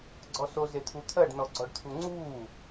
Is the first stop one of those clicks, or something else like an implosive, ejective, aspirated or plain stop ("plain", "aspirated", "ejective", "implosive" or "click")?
click